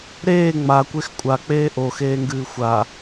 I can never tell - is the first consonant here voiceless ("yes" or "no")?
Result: no